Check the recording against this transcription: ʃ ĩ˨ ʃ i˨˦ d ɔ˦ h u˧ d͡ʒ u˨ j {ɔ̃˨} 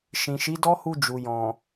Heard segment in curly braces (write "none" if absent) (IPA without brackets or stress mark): ɔ̃˨